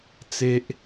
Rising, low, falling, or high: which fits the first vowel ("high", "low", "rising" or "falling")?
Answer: high